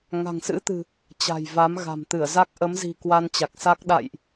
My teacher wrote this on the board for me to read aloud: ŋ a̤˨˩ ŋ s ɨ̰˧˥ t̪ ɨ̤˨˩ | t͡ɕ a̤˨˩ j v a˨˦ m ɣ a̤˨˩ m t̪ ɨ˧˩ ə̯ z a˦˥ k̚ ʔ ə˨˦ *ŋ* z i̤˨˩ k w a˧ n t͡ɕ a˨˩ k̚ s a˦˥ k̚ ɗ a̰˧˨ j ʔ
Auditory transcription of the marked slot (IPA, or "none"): m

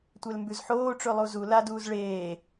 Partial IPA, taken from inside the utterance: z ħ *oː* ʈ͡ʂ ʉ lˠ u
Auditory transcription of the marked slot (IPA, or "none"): oː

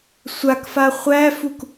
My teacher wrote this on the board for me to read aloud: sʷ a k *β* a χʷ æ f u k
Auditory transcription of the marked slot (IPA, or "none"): f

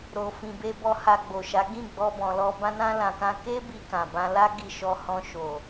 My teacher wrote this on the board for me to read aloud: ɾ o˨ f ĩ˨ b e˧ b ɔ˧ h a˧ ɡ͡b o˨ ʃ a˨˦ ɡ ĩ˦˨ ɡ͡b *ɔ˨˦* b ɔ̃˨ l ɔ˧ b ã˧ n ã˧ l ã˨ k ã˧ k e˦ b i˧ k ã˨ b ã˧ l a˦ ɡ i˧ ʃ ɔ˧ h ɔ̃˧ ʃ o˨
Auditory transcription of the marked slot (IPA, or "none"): ɔ˧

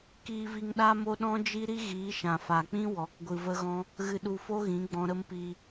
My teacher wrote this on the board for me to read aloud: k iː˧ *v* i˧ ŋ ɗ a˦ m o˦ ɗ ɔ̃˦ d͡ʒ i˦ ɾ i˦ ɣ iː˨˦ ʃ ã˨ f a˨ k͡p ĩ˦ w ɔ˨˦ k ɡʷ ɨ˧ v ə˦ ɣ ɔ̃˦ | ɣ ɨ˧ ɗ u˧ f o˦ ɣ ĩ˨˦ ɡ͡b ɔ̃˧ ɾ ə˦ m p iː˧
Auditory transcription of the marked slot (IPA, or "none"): v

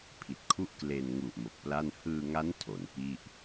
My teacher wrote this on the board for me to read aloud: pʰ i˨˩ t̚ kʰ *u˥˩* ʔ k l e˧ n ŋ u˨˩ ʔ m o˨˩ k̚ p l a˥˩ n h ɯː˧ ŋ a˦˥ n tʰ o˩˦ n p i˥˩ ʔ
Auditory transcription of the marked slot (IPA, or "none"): u˥˩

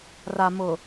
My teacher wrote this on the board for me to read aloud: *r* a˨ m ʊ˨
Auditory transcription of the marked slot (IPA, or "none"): r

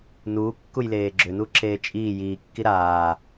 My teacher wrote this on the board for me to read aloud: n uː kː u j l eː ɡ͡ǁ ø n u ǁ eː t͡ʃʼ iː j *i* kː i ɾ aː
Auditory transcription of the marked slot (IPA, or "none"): iː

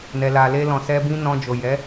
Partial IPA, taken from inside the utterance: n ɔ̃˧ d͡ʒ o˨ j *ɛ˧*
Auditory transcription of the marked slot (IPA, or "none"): ɛ˨˦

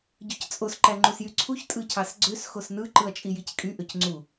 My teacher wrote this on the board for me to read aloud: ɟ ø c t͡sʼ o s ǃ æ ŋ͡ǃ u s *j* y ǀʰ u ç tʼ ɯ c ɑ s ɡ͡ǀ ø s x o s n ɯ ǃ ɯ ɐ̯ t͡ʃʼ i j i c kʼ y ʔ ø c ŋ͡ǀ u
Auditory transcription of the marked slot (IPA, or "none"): j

